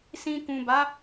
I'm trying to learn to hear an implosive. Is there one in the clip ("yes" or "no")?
no